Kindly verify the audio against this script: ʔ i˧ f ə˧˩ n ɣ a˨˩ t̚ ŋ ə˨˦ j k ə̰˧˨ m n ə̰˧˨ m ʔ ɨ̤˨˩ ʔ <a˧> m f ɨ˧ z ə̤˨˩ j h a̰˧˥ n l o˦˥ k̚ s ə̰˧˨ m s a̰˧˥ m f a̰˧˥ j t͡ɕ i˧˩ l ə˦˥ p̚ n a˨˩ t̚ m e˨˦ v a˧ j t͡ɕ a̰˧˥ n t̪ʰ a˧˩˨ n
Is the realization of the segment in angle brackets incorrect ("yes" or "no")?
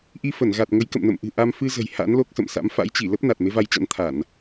no